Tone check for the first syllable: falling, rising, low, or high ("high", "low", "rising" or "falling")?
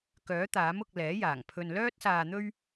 rising